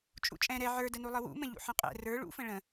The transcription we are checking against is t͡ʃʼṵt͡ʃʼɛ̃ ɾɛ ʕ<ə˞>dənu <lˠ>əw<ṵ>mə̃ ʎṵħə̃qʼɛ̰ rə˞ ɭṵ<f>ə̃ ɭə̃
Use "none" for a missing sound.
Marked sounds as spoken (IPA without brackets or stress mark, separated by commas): ə˞, lˠ, ṵ, f